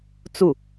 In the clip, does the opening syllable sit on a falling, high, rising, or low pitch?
falling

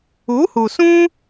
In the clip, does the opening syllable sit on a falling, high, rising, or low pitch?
rising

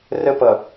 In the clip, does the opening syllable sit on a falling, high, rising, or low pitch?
high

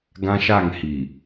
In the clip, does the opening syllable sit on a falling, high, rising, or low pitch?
high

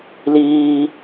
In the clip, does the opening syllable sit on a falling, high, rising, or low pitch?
low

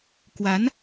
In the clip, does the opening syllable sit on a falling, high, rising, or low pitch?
rising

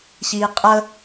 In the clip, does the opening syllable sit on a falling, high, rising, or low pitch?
low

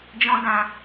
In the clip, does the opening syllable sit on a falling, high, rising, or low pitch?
high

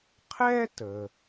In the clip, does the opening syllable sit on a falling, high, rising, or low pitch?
high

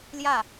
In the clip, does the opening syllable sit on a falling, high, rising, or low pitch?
falling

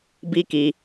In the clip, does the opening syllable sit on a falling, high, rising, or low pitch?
high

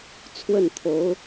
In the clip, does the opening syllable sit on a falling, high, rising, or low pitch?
falling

